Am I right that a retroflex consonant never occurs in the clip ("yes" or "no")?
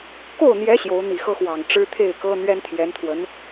no